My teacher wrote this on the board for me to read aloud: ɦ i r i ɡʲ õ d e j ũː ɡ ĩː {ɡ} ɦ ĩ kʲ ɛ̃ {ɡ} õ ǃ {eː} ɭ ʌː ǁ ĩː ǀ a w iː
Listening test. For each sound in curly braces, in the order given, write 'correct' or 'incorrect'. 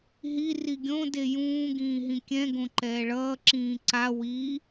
incorrect, correct, incorrect

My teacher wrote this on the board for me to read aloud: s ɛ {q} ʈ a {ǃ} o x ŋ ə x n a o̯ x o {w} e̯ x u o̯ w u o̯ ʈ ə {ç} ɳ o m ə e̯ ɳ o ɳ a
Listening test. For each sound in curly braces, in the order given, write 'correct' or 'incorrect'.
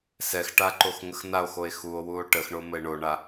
incorrect, correct, incorrect, incorrect

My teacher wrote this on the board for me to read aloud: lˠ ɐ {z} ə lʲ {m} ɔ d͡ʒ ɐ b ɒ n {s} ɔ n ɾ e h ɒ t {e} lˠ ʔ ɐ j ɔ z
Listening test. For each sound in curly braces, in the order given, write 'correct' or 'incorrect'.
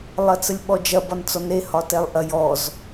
incorrect, incorrect, incorrect, incorrect

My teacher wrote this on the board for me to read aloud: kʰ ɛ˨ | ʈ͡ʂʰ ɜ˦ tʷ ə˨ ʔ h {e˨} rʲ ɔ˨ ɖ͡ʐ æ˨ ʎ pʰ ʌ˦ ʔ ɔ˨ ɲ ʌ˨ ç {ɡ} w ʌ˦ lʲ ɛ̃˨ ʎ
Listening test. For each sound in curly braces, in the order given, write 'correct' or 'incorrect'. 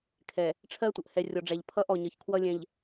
incorrect, incorrect

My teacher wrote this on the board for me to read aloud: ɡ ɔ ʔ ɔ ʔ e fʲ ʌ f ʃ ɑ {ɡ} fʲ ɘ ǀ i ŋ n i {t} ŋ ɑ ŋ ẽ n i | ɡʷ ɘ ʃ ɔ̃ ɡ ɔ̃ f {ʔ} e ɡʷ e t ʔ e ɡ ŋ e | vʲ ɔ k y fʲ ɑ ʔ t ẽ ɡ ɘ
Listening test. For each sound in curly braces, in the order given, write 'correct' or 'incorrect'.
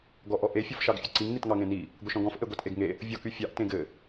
correct, correct, correct

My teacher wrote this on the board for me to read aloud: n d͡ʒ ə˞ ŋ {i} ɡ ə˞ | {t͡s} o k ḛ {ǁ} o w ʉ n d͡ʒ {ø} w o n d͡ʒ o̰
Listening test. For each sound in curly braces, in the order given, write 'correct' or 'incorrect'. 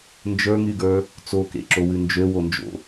incorrect, correct, correct, correct

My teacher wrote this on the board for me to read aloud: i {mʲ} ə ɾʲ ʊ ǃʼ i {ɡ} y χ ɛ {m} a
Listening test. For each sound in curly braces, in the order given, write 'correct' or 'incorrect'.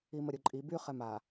incorrect, incorrect, correct

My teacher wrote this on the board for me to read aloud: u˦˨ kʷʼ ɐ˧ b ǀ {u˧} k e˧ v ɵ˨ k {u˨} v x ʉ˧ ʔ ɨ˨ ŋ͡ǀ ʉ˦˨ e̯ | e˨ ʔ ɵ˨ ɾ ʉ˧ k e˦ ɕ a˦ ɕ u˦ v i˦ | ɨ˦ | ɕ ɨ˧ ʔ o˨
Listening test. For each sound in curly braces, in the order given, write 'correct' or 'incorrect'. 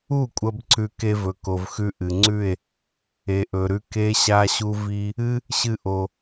incorrect, incorrect

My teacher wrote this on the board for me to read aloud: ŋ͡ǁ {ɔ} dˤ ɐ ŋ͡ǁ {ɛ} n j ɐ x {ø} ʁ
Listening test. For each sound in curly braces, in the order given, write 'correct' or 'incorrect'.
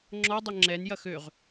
correct, correct, correct

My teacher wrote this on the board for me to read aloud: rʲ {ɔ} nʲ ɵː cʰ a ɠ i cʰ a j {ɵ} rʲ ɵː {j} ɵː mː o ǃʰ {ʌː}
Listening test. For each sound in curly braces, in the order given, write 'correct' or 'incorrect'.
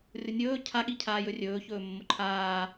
incorrect, correct, incorrect, incorrect

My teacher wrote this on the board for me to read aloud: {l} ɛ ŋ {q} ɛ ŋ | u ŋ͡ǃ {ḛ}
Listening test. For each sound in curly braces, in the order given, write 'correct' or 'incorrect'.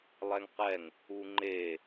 incorrect, correct, incorrect

